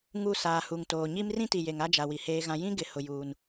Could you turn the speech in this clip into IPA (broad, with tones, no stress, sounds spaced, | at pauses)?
ŋ u˦˨ s aː˨ h u˨ ŋ t oː˨ ɲ i˦ m r ĩ˦ t i˨ j e˨ ŋ a˦ d͡ʒ a˨ w i˨ h eː˦ ɣ ã˦ j ĩ˦ ɡ ɪ˨ h ʊ˨ j uː˨ n